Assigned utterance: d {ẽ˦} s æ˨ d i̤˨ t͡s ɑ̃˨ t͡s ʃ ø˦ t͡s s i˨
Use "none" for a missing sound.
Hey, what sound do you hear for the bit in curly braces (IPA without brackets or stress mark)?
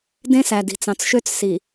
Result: ẽ˦